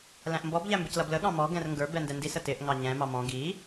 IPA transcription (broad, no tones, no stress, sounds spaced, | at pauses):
l æ̃ ʔ m b ɔ b ʎ æ m b ɪ c l ʌ b l ə ɠ ɑ̃ m ɔ ɡ ɛ̃ r ŋ ɡ ə˞ b ɛ n d ɛ n d i s ə t ɪ ʔ ŋ ɑ ɲ ɛ̃ m ɑ m ɔ̃ ɡ i